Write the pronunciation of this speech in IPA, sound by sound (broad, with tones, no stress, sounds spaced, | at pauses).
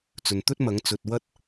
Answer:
t͡s ɵ˨ n t̪ ɵ˥ t̚ m ɐ˨˧ ŋ t͡s ɵ˨ t̚ w ɐ˧ t̚